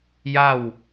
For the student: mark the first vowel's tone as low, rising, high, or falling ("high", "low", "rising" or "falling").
falling